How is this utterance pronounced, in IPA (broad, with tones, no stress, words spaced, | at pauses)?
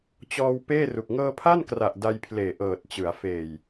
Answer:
t͡ɕɔː˧w peː˥˩ru˨˩k̚ ŋɤː˧pʰa˥˩nkra˨˩ʔ da˧jpʰleː˨˩ʔɤː˨˩t̚t͡ɕɯ˩˦a̯ feː˨˩j